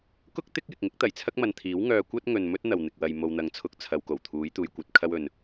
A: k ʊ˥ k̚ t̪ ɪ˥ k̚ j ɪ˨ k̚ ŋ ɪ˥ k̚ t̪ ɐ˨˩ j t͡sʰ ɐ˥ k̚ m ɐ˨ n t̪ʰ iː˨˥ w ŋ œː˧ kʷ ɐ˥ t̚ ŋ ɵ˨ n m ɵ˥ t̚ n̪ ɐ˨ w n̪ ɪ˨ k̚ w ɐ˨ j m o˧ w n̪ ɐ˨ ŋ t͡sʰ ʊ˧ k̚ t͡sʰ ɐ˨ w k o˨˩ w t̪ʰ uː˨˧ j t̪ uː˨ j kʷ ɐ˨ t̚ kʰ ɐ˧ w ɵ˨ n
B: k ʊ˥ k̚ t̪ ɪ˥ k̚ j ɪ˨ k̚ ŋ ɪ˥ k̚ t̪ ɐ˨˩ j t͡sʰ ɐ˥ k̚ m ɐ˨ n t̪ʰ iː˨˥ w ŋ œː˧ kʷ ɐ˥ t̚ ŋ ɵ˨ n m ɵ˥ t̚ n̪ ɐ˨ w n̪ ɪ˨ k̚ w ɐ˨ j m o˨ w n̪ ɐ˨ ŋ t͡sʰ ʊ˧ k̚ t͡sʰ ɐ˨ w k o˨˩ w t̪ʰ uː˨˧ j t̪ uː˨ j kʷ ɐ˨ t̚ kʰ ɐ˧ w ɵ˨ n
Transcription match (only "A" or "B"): B